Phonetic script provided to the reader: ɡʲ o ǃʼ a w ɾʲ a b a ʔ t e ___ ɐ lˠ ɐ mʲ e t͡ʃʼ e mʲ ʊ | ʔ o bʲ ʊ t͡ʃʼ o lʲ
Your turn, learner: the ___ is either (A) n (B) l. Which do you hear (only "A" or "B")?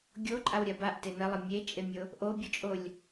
A